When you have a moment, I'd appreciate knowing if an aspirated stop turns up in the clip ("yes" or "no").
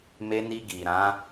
no